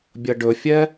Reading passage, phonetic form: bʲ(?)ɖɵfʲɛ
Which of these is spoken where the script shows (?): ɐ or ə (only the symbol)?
ɐ